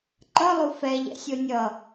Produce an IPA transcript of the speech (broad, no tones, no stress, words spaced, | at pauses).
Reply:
ǃʌlˠu fɛʎɛ̰sʲo nʲʌ